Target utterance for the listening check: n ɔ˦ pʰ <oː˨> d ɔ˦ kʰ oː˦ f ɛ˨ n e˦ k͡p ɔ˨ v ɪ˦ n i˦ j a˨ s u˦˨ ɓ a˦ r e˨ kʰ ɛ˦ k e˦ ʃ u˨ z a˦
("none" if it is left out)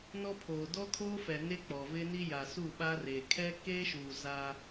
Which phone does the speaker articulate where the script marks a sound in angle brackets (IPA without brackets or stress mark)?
oː˨